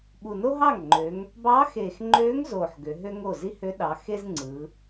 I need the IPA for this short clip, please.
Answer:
ɓ u˨˩ n o˥ ɦ ɑ˥˩ ŋ ŋ͡ǃ ø˩˧ ŋ | b ɑ˧˥ x eː˨˩ x ŋ͡ǃ øː˧˥ ŋ z oː˨˩ ħ ɡ ø˩˧ ɦ ø˥ ŋ o˥˩ z i˥ h ø˧˥ ɗ ɑ˩˧ x e˥ z ŋ͡ǀ ɯ˩˧

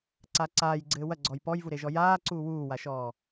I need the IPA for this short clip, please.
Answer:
ǀ a ǀ aː j ɡ͡ǀ ɘː w ɐ ɡ͡ǀ ɔ j p ɔ j v u ɾ e ʒ ɔ j aː ǀ uː w uː w a ʃ ɔː

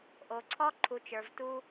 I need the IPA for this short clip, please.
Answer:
ʔ o˨ ǀʰ ɔ˦ ǃʰ u˨ t͡ʃ ə˞˨ v t u˦

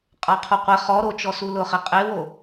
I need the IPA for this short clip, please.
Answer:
qʼ a qʰ u qʷ ɛ χ ɔ ɾ o t͡ʃ ɔ s u l ʊ χ e qʼ e w o

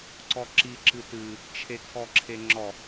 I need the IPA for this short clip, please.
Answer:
ǀ ɔ ǁ i ǁ ɨ t ɨ | t͡ʃʰ e kʰ ɔ ǁʰ e ŋ͡ǁ ɔ

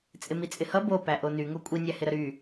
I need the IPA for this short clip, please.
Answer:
t͡sʼ ɪ m i t͡sʼ ɪ h ʌ b o p æ ʔ o n y ŋ o kʷʼ i nʲ æ h ɪ ɾ ə ɾ y

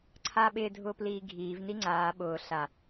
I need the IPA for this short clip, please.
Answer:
ǀʰ aː ɓ ɪː dʱ ʊː p l iː ɡʱ iː v n i ŋ͡ǀ aː ɓ ʊː ɬ a

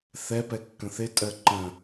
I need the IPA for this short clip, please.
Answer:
θ ɛ p ɛ kː ə̃ θ ɪ tʼ ɜ ǃ ə̃

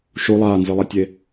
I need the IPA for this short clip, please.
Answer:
ʃ u lˠ aː n z ɨ lˠ a tʲ e

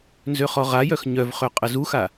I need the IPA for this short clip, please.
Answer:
n z ø χ ɔ ʁ a j œ x ɲ œ v χ ø qʼ ə z u x a

